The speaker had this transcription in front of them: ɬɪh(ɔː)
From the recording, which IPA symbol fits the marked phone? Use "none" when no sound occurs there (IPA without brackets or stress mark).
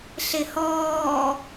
ɔː